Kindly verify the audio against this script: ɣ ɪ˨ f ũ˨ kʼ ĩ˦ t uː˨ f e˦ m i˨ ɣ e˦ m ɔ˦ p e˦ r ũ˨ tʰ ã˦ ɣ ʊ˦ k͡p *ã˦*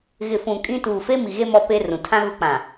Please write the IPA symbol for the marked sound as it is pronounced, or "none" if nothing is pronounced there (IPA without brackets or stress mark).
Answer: ã˨